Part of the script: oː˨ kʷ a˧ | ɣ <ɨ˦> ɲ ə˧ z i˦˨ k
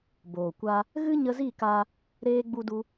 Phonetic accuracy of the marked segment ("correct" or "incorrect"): correct